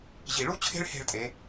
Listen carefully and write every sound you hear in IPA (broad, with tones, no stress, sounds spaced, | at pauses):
ʑ i˧˩ ɭ u˥ t͡ɕʰ e̤˥ ɭ h e̤˥˧ ɭ tʼ e˩˧